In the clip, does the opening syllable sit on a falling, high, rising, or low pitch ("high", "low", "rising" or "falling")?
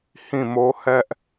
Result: falling